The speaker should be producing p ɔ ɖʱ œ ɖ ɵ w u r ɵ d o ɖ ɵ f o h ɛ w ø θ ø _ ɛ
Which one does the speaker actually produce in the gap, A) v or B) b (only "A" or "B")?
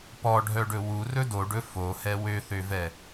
A